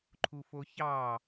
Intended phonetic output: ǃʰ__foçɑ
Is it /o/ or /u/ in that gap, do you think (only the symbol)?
u